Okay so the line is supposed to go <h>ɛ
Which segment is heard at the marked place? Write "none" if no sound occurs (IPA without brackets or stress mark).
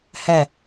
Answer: h